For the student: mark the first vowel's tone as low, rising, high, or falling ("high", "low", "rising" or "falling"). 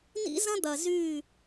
high